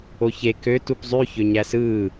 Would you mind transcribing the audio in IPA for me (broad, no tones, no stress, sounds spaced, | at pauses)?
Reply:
o ç e k ø t u p zˤ y ç ø ɲ æ s ɯː